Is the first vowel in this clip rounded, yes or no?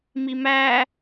no